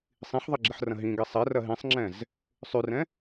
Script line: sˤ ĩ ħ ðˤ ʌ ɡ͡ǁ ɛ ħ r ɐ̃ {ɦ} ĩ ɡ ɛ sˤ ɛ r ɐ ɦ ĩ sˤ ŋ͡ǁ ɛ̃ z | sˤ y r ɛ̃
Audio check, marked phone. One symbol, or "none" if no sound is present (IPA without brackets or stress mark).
ɦ